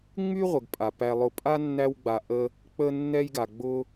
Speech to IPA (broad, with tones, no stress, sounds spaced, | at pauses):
ŋ͡m y˦ ʁʷ ə˩ ɡ pʼ a˩ p æ˨ lˠ ʊ˨ pʼ a˥ nː æ˦ w ɡ͡b a˨ ʔ ə˦ | k͡p ə˦ nː ɛ˦ j ɡ a˩ ɡ͡b ʊ˦